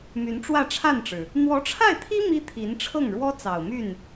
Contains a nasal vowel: no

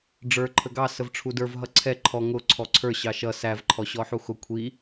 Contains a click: yes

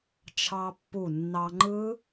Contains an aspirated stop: yes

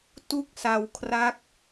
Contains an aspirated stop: yes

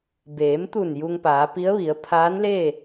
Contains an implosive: no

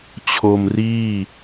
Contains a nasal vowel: no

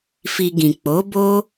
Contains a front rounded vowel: no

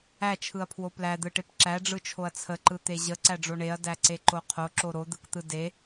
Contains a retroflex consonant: yes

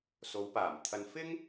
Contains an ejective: no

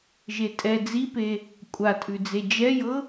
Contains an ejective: yes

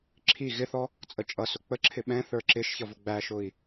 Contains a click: yes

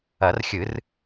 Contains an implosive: no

